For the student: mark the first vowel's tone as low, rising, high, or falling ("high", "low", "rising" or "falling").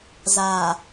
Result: low